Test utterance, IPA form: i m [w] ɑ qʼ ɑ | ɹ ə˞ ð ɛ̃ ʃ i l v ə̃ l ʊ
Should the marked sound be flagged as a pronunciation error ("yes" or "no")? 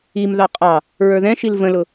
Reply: yes